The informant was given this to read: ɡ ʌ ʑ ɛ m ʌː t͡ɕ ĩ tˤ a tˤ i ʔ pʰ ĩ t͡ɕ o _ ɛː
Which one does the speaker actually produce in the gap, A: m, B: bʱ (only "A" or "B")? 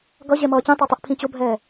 B